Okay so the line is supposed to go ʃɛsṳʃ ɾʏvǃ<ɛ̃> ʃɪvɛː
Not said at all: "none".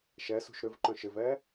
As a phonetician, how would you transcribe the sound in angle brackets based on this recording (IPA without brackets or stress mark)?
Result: œ̃